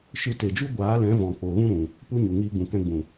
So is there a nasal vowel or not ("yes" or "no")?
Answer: yes